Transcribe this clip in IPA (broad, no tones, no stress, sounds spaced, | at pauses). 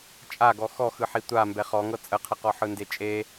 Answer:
t͡ʃʼ a ɡ ɔ x ɔ x ɯ ħ i tʷ a m b ɛ χ ɔ ŋ ɤ t͡sʼ ə qʰ ə q ɔ ħ ɯ n d e t͡ʃʼ e